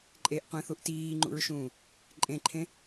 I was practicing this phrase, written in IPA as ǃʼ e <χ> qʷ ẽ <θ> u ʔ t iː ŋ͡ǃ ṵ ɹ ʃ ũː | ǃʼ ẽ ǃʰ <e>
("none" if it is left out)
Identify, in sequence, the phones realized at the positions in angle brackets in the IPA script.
ʔ, θ, ẽ

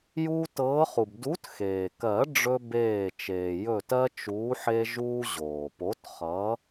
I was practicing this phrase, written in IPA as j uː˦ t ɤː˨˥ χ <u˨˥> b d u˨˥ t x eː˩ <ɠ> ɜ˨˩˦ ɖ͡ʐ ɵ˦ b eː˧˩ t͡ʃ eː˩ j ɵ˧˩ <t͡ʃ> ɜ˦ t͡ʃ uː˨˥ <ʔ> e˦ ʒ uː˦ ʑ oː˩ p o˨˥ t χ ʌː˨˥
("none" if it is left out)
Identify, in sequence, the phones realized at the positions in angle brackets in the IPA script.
u˩, k, t, ħ

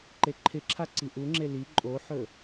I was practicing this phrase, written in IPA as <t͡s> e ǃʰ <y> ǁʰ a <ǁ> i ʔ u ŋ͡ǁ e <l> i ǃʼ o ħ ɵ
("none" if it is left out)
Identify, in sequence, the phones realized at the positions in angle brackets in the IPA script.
ǃ, ɪ, ǀ, l

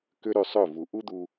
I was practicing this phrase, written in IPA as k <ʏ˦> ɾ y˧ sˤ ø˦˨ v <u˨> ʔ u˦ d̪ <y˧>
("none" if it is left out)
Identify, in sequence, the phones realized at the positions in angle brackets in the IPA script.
ʏ˦, u˨, u˧

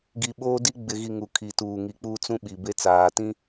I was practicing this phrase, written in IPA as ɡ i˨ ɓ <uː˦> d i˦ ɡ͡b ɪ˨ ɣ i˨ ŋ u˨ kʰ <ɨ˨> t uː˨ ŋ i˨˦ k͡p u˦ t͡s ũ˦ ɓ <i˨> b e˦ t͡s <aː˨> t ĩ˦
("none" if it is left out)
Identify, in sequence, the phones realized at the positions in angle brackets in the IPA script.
oː˦, i˨, i˨, aː˨

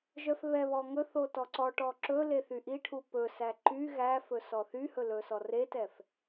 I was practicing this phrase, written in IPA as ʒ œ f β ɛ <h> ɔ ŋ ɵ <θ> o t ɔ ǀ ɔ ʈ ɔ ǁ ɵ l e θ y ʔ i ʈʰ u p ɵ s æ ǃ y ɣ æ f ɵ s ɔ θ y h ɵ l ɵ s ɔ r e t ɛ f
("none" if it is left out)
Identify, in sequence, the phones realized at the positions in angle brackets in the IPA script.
β, θ

